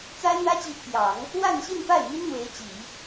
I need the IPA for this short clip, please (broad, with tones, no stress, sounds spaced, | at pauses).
t͡s a˥ ɪ̯ n̪ ä˥ t͡ɕ i˧˥ t̪ʰ j ɑ˨˩˦ ŋ | w a˥˧ n ɕ i˥˧ n p a˥˩ ɪ̯ m i˥ n n̪ w e˧˥ ɪ̯ t͡ɕ i˨˩˦